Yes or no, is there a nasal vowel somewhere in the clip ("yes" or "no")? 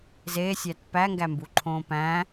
yes